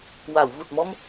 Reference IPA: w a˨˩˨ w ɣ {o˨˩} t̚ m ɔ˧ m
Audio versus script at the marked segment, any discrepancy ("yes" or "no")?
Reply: yes